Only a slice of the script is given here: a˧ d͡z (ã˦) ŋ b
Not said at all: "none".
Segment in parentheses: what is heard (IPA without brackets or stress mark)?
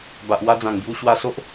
ã˨˩